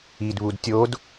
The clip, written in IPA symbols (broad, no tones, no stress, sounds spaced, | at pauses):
i d β u d tʲ o d